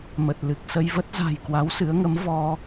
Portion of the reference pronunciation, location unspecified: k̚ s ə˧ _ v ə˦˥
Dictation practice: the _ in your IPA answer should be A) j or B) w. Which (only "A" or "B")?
A